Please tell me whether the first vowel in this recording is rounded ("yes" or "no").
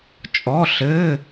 yes